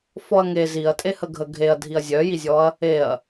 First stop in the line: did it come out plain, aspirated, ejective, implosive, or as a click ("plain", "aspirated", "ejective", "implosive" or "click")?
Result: ejective